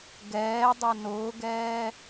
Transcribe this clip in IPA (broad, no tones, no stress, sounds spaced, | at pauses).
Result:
ɡ ɛː dˤ o n ʊː ɡ ɛː